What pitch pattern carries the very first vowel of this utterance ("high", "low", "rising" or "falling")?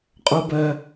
high